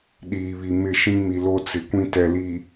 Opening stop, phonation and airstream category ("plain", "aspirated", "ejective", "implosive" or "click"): implosive